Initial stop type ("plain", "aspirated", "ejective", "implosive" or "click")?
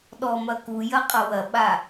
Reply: implosive